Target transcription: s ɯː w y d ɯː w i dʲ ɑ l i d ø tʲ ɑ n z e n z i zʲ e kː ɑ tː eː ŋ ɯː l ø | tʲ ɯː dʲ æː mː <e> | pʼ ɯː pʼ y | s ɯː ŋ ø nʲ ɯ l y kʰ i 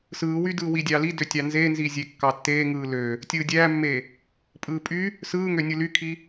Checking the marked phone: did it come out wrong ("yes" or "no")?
no